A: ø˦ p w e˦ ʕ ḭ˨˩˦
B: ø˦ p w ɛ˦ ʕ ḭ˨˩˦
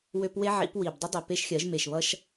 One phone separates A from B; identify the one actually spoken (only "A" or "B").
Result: A